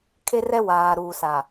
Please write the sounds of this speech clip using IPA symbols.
kʰ e˦ r ɛ˦ w aː˨ ɾ uː˨ s a˨

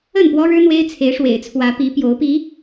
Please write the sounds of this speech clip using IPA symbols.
ə˥˨ n p w ɔ˦ ɻ ɻ̩˦ n̪ w e˦ ɪ̯ t͡sʰ e˨˦ ɪ̯ ʂ w ḛ˨˩ ɪ̯ t͡sʰ w ä˨˦ p i˨˦ p j o˨˦ ʊ̯ p i˨˦

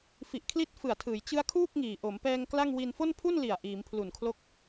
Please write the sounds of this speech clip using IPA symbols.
f i˨˩ ʔ kʰ l i˦˥ t̚ f ɯ˨˩ a̯ tʰ ɯː˩˦ j t͡ɕ ɯ˦˥ a̯ kʰ uː˥˩ k̚ ŋ iː˨˩ ʔ o˩˦ m p ɛː˧ ŋ k l a˥˩ ŋ w i˧ n f o˥˩ n pʰ u˥˩ n l i˨˩ a̯ ʔ iː˩˦ m pʰ l u˨˩ n kʰ l o˦˥ k̚

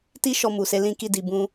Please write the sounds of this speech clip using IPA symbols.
t i˦ ʃ ɔ˧ m u˨ s e˧ l ĩ˧ k i˧ d i˨ b ũ˧

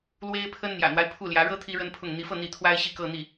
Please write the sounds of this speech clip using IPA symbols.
l w e˥ ɪ̯ pʰ ə˥ n n̪ j ä̰˨˩ n̪ w a˦ ɪ̯ pʰ u˥˩ l j ä˧˥ ɻ ɤ˥ t̪ʰ i˥ ɻ ə˥ n pʰ ʊ˥˩ ŋ n̪ i˧˥ f ɤ˥˧ n̪ i˥˩ t̪ʰ w a˥ ɪ̯ ɕ i˥˧ k ɤ˥˧ n̪ i˥˩

